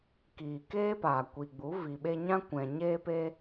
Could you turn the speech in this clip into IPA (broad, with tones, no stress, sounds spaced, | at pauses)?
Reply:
k iː˨ k eː˦ p aː˨ kʷ i˨ ɡ͡b u˨˦ v i˨ ɓ e˧ ɲ ã˦ kʷ ɛ̃˨ ɲ eː˦ p e˦